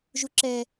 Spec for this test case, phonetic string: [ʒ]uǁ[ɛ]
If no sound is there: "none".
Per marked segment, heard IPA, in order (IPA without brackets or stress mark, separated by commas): ʒ, ɛ